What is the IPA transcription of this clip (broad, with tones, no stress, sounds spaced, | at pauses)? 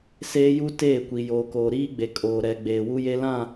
s eː˦ j u˦ t eː˦˨ kʷ i˨ j oː˨ k oː˨ ɾ iː˦ ɡ͡b e˨ kʼ oː˨ ɾ ɛ˨ ɡ͡b eː˨ w u˦ j e˦ l ã˦˨